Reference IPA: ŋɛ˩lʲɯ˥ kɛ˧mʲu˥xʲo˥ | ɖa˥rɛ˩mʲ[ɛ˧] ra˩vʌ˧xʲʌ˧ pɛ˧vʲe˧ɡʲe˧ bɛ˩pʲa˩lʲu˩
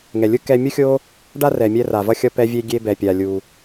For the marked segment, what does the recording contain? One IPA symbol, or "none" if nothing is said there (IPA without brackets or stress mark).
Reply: ɛ˧